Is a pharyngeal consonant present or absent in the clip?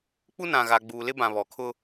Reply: absent